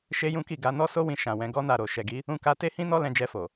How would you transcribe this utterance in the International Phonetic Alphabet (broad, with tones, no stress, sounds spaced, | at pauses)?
ʃ e˦ j ũ˦ k i˦˨ ɡ a˧ n ɔ˦ s o˦ w ĩ˧ ʃ ã˨ w ɛ̃˨˦ ɡ ɔ˦ n a˦˨ ɾ o˨ ʃ ɛ˨ ɡ i˨˦ | ũ˧ k a˧ t e˦ h ĩ˦ n ɔ˦ l ɛ̃˧ d͡ʒ ɛ˧ f o˨